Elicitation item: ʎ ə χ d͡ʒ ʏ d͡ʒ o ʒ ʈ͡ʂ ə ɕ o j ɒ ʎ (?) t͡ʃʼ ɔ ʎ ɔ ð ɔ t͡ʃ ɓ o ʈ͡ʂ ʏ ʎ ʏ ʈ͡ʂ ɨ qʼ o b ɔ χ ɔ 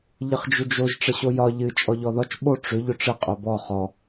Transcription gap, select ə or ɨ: ɨ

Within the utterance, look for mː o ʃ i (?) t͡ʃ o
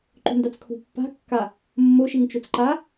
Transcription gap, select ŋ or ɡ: ŋ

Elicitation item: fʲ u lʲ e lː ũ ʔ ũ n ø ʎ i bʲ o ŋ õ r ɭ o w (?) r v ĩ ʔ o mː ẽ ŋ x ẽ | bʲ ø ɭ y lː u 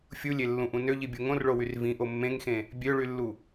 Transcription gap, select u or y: y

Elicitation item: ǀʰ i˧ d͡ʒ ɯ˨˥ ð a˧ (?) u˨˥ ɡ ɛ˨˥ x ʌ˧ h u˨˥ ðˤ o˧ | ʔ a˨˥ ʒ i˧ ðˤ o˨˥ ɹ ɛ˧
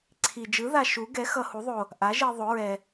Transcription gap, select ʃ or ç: ʃ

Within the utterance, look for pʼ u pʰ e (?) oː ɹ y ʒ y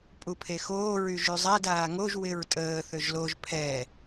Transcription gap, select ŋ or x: x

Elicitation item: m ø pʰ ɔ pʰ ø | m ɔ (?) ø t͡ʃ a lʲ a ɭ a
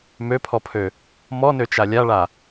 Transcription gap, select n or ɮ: n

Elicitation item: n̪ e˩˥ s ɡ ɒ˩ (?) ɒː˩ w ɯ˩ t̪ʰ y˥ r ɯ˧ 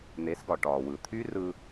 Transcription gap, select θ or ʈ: ʈ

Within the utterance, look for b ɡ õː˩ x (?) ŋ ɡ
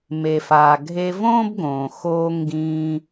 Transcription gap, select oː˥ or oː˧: oː˧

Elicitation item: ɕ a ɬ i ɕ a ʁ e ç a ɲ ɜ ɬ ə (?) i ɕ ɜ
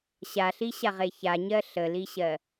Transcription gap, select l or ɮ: l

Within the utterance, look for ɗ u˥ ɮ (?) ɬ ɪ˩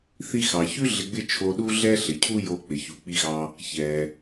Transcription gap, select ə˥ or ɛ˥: ɛ˥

